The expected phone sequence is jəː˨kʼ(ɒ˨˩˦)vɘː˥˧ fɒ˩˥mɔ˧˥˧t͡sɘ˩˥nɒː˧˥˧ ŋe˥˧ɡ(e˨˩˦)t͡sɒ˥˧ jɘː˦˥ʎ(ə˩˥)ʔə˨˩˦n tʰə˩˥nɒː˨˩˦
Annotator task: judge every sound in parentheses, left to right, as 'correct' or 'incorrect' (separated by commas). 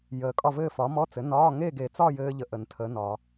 incorrect, correct, incorrect